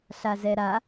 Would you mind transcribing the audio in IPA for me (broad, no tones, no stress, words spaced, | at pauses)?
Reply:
ɬazɛɾa